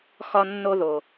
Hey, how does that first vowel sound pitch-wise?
high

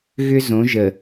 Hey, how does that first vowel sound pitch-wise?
high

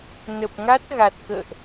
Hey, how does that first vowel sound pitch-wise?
low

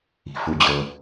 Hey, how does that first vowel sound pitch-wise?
low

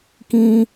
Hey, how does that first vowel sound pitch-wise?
high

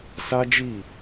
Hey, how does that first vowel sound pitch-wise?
high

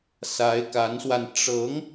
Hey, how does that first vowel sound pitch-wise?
rising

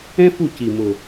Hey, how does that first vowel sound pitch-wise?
high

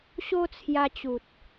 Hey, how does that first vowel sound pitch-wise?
high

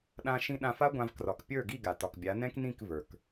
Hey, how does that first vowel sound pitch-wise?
high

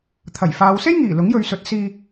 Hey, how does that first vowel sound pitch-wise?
low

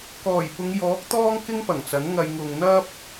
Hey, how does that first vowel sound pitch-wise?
low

